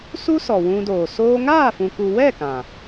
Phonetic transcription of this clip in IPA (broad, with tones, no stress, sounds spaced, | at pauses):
s u˦ s ɔ˨ w ũ˧ d oː˨ s oː˦ ŋ aː˦˨ f ũ˨ k u˨ w ɛ˦˨ k ã˨